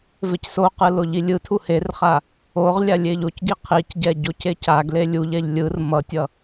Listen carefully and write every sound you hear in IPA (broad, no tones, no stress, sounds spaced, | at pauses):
v e c s o q ɯ l o ʎ i lʲ ɯ tʰ u h e r χ a | o ʁ lʲ a lʲ e ʎ o c ɡ i qʰ i c ɟ ɛ ɟ o c e c a ɡ l e lʲ u ʎ ɛ ʎ lʲ ɯ r m ʌ tʲ ʌ